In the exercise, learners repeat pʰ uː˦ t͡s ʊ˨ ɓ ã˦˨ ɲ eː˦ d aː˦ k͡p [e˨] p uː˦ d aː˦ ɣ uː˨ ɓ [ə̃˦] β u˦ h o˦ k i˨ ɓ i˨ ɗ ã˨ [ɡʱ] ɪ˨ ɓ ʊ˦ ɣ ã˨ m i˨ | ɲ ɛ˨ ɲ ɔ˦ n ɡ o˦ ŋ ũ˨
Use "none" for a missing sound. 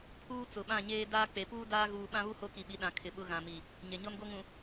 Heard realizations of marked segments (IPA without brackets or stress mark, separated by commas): e˨, ã˦, kʰ